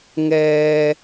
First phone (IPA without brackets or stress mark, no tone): ŋ